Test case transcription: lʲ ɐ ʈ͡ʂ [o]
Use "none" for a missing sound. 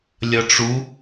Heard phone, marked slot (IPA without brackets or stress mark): u